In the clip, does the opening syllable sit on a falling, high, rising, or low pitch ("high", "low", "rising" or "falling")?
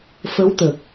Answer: rising